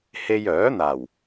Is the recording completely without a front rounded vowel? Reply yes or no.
no